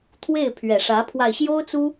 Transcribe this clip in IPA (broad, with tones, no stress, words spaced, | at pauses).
t̪ʰwe˥˩ɪ̯pʰɥɛ˨˩ʂä˧˥pʰwa˧ɪ̯ ɕjo˥ʊ̯t͡su˥